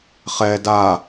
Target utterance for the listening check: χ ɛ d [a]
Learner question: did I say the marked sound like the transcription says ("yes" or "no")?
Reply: yes